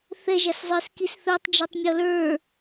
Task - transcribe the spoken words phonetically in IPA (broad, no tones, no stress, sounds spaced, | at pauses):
θ ɛ ʒ a s zˤ ə˞ s k i s θ ə˞ tˤ d͡ʒ ɵ tˤ mʲ ɔ l ə˞